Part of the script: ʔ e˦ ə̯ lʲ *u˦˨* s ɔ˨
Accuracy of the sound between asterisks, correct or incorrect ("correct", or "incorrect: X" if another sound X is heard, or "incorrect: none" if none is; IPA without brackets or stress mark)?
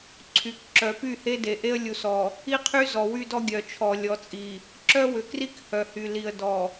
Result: incorrect: u˨